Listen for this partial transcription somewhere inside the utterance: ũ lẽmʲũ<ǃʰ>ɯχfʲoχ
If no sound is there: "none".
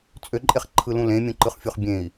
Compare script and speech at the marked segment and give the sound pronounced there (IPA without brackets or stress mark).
ǃ